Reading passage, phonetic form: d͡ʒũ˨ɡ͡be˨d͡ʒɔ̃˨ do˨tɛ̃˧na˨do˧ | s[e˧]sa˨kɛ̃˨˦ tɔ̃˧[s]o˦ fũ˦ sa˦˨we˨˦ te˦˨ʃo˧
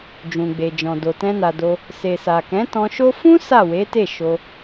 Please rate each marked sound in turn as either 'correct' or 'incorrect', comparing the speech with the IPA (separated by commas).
incorrect, incorrect